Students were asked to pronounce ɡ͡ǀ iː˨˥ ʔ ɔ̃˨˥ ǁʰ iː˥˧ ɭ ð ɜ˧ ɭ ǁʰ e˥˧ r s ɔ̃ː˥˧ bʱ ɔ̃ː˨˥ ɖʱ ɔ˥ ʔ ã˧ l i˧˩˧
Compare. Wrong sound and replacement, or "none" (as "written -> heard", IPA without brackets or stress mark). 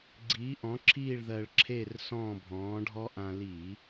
none